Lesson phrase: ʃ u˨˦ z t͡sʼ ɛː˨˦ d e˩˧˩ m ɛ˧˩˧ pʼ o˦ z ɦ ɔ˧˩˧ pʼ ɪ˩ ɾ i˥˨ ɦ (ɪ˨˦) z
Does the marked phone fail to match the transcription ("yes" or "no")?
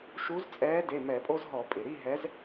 yes